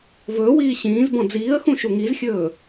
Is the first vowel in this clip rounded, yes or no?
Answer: yes